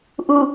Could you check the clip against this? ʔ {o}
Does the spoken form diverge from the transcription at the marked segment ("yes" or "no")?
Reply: yes